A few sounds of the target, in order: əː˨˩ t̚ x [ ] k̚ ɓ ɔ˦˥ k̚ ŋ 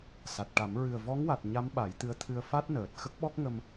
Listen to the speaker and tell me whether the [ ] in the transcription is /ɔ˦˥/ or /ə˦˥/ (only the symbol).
ə˦˥